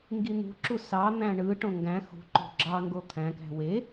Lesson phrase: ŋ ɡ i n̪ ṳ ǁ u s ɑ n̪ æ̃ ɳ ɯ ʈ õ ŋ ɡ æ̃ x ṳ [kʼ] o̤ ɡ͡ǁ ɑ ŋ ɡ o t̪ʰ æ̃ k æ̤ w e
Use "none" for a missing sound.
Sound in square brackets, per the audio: ǃ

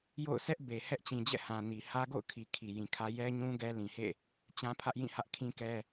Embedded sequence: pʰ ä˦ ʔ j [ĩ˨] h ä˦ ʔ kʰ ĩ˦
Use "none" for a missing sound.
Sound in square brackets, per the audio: ĩ˦˨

